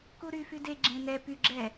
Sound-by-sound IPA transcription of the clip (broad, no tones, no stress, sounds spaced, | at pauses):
k u ɾ y f y d e ɡ͡ǁ ẽ n ɛ p y ɡ͡ǁ ɛ